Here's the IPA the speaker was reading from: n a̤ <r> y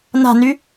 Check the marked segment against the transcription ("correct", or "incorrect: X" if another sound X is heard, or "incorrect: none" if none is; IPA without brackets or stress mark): incorrect: n